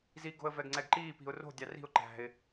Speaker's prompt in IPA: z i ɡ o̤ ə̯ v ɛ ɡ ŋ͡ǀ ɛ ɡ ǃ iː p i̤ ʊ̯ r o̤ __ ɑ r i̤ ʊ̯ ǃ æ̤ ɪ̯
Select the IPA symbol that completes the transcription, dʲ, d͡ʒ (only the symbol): dʲ